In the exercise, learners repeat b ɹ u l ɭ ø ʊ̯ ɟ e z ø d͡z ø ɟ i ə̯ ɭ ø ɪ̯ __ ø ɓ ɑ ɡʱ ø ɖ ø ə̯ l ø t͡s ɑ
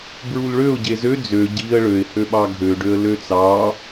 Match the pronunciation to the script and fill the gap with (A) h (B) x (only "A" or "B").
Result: A